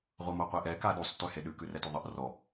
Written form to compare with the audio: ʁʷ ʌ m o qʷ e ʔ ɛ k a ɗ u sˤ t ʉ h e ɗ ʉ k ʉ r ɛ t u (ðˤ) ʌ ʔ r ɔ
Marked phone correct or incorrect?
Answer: correct